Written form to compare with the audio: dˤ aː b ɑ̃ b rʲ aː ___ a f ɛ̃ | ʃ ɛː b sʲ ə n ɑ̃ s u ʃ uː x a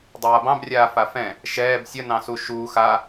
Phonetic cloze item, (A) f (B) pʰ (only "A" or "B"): A